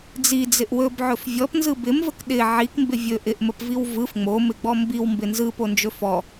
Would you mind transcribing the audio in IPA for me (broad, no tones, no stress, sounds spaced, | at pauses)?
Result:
d͡z i d͡z ɪ ʔ w ɵ b ʕ ɵ f vʲ ɔ p n z ɯ b ɪ m v ə k ɗ ɪ ʕ i k m b ɪ vʲ ɵ ʔ ɪ ʔ m ə p v i w v ɯ f ŋ͡m o m ɪ ɡ͡b ɔ m b i w m b ɪ n z ɯ p o n d͡ʒ ɵ f ɔ